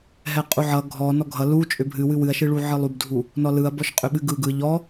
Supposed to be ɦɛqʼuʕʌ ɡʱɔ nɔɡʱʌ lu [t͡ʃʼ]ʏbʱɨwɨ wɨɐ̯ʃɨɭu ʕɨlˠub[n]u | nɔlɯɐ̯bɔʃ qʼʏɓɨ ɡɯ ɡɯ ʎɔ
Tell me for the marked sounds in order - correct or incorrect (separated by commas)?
correct, incorrect